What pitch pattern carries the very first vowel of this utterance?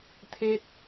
high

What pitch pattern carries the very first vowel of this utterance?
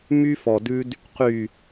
high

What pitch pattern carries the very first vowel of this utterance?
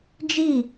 falling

